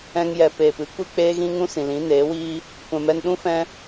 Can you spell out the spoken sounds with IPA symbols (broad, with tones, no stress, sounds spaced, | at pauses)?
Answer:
ɛ̃˧ ŋ j ɛ˨ p eː˨ p ɨ˦ kʷ i˦ k͡p eː˦ ɣ ĩ˦ ŋ ũ˦ s ĩ˨ l ĩ˨˦ n eː˨˦ w iː˦ | kʷ ɛ̃˨ m ɛ˧ n ɗ ũ˦ f ɛ̃˦